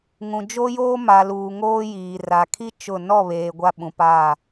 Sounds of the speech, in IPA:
ŋ ũ˨ d͡ʒ o˦ j oː˦ m a˨ l uː˨ ŋ oː˦ j iː˨ r a˨ kʰ i˦ t͡ʃ ʊ˦˨ n ɔ˦˨ β eː˨ ɡʷ a˦ ɓ ũ˨ p aː˦˨

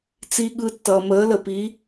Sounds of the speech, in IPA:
t͡s i˧ ɠ ɯ˧ tː ʌː˧ m əː˧˥ l ə˧ p i˧˥

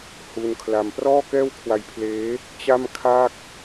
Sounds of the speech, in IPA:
h u˧ n kʰ l a˧ m p r ɔː˥˩ k ɛː˥˩ w kʰ w a˧ j pʰ l eː˦˥ | t͡ɕ a˥˩ m kʰ aː˥˩ k̚

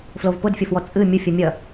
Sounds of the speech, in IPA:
f l o v p ʊ d fʲ ɔ f w ɔ t͡sʼ ɨ mʲ ʊ fʲ u mʲ ɐ

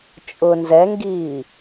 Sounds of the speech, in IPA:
t͡ʃʼ ʊ n z ɛ ŋ ɡ iː

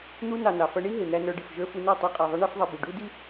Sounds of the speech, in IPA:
n̪ u˧ n ɑ˨ n ɑ˨ f ʌ˧ ɳ i˦ ɦ ɪ˨ n̪ æ˧ n ə˞˧ ɖ ɪ˨ f ʒ ə˞˧ f u˧ n ə˞˦˨ tˤ ɑ˧ qʼ æ˨ ðˤ ʌ˧ ɳ ɛ˦ f ðˤ ɛ˧ b i˨ ɖ u˦ d i˦

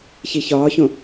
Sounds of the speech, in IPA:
ç i ç ɒː ç õ

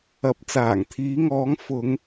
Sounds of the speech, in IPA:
ɐ˨ p̚ t͡s aː˨˩ ŋ t̪ʰ iː˨˧ ŋ ɔː˨˧ ŋ f ʊ˨˧ ŋ

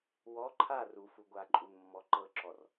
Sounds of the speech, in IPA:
w ɔ ǃʰ a r u f u ɡʷ a ǃʼ u n mː ɔ ǃ ɤ ǁ ɔ r

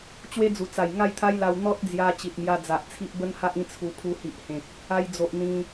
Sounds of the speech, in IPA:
t͡ɕ w e˦ d͡z u˨˩ t͡s a˨˩ j ŋ a˥˧ j t̪ʰ a˦ j l a˧ w n̪ ɔ˦ t̚ d͡z j a˧ t͡ɕ i˨ t̚ m j a˧ d͡z a˨ ʔ t͡sʰ i˦ ʔ b ə˦ n h a˦ ʔ ĩ˦ t͡sʰ u˧ pʰ u˧ h i˨ ʔ h ẽ˨ k̚ | a˧ j d͡z o˨ ʔ n̪ ĩ˧

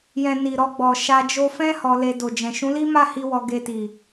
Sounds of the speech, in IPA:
j ɛ̃˨ n i˨ ɾ ɔ˧ ɡ͡b ɔ˨ ʃ a˧ d͡ʒ o˧ f ɛ̃˦ h ɔ˧ l e˧ d o˨ d͡ʒ ɛ̃˨ ʃ ũ˨˦ l i˦ m a˦˨ h i˧ w ɔ˧ ɡ e˧ t i˨

